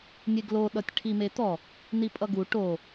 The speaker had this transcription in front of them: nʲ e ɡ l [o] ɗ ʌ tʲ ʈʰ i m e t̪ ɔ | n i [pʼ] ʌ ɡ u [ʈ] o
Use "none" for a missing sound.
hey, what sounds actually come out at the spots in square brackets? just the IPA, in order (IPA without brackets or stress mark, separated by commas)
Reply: o, pʼ, ʈ